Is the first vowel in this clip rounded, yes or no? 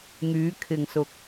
yes